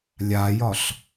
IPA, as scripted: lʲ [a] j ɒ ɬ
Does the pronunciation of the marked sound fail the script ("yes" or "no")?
no